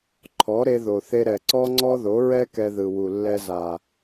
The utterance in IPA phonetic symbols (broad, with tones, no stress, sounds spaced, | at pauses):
ǃʰ ɔ˨˦ ɾ e˧ ð o˨ θ e˧ ɾ ɛ˨ ǀ ɔ˦ ŋ͡ǀ ɔ˦ ð o˨˦ ɹ ɛ˦ k ɛ˧ ð ɯ˨ w u˨ lː ɛ˧ z a˨